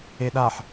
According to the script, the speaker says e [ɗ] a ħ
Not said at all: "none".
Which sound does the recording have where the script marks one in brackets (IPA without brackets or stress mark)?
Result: ɗ